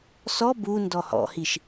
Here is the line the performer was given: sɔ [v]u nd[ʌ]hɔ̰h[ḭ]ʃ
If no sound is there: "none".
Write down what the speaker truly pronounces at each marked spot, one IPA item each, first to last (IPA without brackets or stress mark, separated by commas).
b, ɔ, i